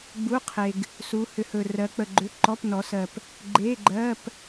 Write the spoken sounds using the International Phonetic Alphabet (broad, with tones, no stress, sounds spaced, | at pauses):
ɡ͡b u˧˥˧ qʰ e˨ ɡ | s u˨˦ h ʏ˨˦ h ɵ˨ r ɜ˨˦ k͡p ə˨ ɡ͡ǃ ʏ˧˥˧ ǃ ɔ˧˥˧ p n ɔ˨˦ s ɜ˨ p | ɡ͡ǃ e˧˥˧ ɡ͡ǃ ɜ˧˥˧ p